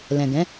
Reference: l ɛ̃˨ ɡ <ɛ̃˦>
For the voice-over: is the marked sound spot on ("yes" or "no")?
no